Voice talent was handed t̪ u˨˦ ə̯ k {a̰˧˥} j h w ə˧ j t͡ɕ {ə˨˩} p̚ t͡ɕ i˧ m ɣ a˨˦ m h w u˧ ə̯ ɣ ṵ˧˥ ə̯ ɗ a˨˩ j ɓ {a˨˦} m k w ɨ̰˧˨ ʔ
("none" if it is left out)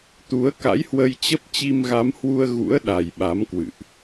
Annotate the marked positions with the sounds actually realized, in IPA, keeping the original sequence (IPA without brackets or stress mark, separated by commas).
a̰˧˥, ə˦˥, a˨˦